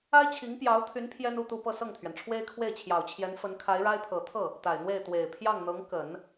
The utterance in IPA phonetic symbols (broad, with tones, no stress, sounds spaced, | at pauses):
a˥ ɪ̯ t͡ɕʰ i˧˥ ŋ p j ɑ˧˥ ʊ̯ t̪ʰ y˧˥ n pʰ j ɛ˥ n u˥˧ t̪ u˥˧ p ɤ˥˧ s ɤ˥˩ ŋ t̪ʰ ɥ ɛ˩ n ʈ͡ʂʰ w e˥ ɪ̯ kʰ w e˥˩ ɪ̯ t͡ɕʰ j ɑ˨˩ ʊ̯ t͡ɕʰ j ɛ˧˥ n f ə˧˥ n kʰ a˧˥ ɪ̯ ɻ a˥ ɪ̯ pʰ ɤ˨˩ t̪ʰ ɤ˥˩ | t̪ a˨˩ ɪ̯ n̪ w e˥˩ ɪ̯ t̪ w e˨˩ ɪ̯ pʰ j ɑ˥˩ ŋ n̪ ɤ˧˥ ŋ k ə˨˩˦ n